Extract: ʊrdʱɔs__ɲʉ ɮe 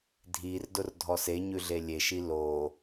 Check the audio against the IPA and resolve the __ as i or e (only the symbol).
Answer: e